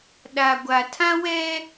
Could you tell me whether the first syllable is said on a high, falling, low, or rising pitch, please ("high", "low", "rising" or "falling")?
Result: low